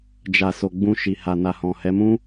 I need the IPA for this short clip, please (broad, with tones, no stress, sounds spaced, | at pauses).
d͡ʒ a˨ s o˨ ɡ͡b ũ˧ ʃ i˨ h a˨ n a˨ h ɔ̃˨ h ɛ˨˦ m ũ˦